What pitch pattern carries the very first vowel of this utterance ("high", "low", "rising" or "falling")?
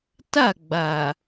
falling